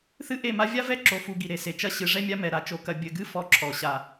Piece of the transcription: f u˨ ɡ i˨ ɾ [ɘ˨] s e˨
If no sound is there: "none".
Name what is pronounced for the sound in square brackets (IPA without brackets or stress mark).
e˨